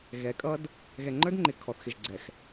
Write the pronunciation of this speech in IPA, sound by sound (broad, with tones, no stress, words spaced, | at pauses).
ɣɛ˨˦kʼʌ˦d | ɣɛ˨ŋ͡ǃə˞˦dŋ͡ǃɪ˨ kʰɔ˨θxɪ˨ʒɡ͡ǀɛ˨x